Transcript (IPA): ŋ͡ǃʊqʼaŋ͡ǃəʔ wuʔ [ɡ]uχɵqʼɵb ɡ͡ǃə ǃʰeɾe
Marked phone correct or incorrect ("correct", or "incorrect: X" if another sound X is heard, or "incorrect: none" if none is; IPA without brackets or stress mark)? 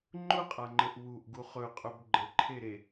correct